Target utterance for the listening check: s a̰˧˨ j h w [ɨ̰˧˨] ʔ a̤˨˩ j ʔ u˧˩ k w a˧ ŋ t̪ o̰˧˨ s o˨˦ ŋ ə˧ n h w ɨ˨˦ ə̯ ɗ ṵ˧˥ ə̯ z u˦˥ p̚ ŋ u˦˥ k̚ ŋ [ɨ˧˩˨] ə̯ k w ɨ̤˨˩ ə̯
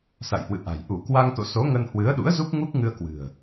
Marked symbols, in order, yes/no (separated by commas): yes, no